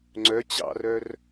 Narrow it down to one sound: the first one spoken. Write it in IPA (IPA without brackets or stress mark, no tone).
ŋ͡ǀ